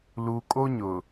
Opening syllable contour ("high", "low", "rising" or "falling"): low